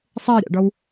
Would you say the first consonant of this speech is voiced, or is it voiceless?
voiceless